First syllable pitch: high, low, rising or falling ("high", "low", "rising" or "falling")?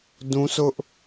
high